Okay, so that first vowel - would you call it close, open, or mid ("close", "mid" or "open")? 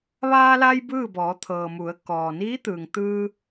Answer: open